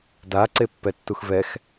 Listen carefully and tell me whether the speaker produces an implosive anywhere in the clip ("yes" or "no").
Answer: no